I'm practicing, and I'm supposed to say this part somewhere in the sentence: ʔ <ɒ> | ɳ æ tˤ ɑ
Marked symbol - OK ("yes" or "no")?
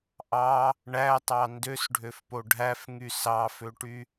no